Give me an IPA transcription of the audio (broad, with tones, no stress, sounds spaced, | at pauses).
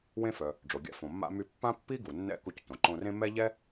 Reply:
w ẽ˧ f œ˩ | ɖ͡ʐ o˩ ɡʲ a̰˧ f õ˩ mː a̰˧ m y˧ pː ã˥ pː i˥ ɡ u˩ nː ɛ̰˧ k u˧ c t õ˩ ǃ õ˧ r ẽ˥ m ɛ˥ ʎ ɛ˥